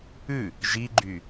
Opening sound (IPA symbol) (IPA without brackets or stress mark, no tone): ʉ